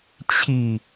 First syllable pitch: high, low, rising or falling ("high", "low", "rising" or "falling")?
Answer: low